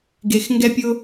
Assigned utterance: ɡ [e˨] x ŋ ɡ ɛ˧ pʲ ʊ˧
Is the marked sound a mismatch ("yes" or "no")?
no